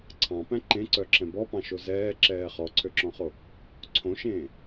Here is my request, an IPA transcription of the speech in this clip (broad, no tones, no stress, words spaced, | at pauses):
ǀʰɑ̃pæ̃ ǃẽǀœǁɛ̃ bɔpɑ̃ʃo zɛːǁɛː χɔǀʰøǁɔ̃χo | ǀʰõʃẽː